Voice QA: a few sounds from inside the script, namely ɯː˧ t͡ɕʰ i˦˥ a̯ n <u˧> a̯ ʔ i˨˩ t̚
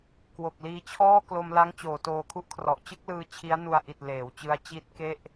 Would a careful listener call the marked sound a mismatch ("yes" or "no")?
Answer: no